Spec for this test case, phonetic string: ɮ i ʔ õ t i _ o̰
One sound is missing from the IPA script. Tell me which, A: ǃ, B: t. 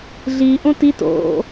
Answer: B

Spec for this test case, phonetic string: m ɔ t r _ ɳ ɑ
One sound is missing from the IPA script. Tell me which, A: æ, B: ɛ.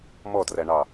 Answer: A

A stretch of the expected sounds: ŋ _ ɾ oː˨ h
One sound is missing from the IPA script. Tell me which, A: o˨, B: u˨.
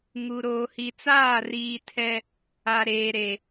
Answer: B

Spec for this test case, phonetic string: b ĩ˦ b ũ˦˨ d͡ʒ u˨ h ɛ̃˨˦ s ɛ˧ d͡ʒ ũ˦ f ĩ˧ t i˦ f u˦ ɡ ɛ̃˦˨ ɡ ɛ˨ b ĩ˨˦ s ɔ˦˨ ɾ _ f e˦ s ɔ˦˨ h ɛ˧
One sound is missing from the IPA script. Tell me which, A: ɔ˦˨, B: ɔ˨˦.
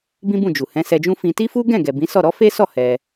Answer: B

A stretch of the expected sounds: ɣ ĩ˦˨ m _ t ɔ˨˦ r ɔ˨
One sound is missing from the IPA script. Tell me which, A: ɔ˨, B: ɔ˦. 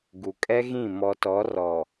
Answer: A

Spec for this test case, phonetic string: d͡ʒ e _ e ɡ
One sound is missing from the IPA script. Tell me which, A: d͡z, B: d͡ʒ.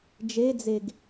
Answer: A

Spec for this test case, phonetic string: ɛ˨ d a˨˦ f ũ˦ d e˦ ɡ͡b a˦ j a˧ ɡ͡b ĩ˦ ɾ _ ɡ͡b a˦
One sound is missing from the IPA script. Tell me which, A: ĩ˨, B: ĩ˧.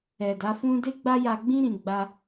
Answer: B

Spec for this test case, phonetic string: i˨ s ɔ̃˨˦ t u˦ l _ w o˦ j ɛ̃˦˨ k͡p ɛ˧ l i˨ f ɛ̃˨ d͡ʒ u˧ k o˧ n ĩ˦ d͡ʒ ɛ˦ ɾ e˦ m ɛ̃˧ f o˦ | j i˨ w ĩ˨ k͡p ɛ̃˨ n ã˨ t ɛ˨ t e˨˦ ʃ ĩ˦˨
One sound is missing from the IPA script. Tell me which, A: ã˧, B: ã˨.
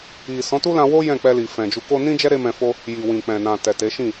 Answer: A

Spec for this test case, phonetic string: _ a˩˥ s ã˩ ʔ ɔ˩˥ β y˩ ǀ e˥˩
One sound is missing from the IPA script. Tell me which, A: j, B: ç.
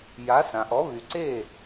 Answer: A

